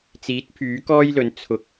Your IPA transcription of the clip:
t͡siː˨˥t̚pʰyː˨˥kɔː˥jlɵ˨˥n t͡sʰʊ˧k̚

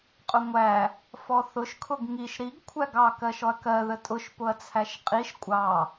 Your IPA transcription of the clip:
qʼʊŋʷæ | fɔθʊʃ kʰʊɡŋiʃ ɾiɡ kʷʰæɡɑ kɜʃɔɐ̯kɜ ðətʼʊʃ pʊɐ̯t͡sʰæʃqʼiʃ kʷʼɑ

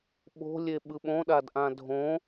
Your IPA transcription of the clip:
ɓo̤lʲe ɓɯɓõɗadʔã dʱõ

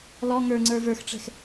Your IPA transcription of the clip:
lɔ ŋə˞ŋ͡ǀə˞ və˞xʈ͡ʂɛ̤x

